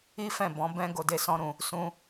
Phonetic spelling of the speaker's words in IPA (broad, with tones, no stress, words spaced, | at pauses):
i˦fɛ̃˦˨bɔ̃˨˦ bɛ̃˦ ɡo˧de˦sɔ̃˦ɾũ˧ | sũ˦